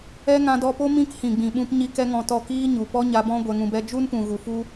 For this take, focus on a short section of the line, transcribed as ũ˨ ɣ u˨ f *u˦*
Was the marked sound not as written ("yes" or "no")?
no